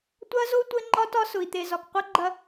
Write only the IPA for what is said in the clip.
tʷɐ˦zo˦ tʷɘ˦ŋ͡ǃɒ˦tɒ˦ sʊ˨i̯t̪e˨zɒ˨kqʷɐ˦ ɡ͡ǃɐ˦

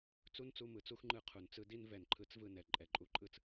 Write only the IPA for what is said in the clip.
t͡su˦nt͡su˧mɯ˨t͡su˦x ŋ͡ǃɯ˧ qʰu˨nt͡sɯ˦di˦n vɛ˨nǃʰɯ˧t͡s vɯ˦˨nɛ˨ ǃʼɛ˨ǃʼu˨˦ǃʼɯ˧t͡s

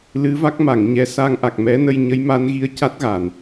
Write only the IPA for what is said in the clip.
lɨ˧˥va˦˥k̚ma˨˩˨ŋɲɛ˧˥ sa˧ŋʔa˨˩k̚mɛ˧˥nə˧j ɲə˧˥jma˧˥nɣi˧ə̯ ca˦˥t̚ɣa˨˩˨n

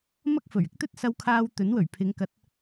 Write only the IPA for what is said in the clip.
mɐ˥k̚fɵ˨˩ɥɪ˥k̚ t̪ɵ˥t̚sɐ˧wkʰaː˧w t̪ɵ˨˥nwɵ˨˩ɥpʰɪ˨˧ŋ kɐ˨˥t̚

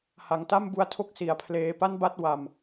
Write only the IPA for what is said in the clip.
ha˩˦ŋta˥˩mbu˧a̯tʰo˥˩k̚ si˩˦a̯pʰleː˧ pa˥˩nba˥˩t̚ wa˧m

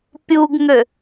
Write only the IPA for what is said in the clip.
pʲuɡŋø

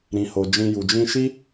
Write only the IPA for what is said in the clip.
ɾĩ˨ho˨ d͡ʒĩ˧ju˨ d͡ʒĩ˧ʃi˦

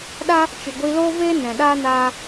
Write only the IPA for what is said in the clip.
ɗa˦ | t͡ʃɨ˨ɡʷi˧loː˦veː˦ nɛ̃˨ɗa˦naː˦

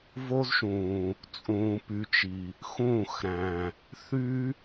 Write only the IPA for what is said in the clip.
vo˦zʃũː˨ | t͡sʼũː˨py˨t͡ʃi˨ | xũː˦˨xɾæ̃˨ | θy˦

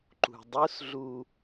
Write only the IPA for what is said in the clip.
ǃṳdˤusɮu

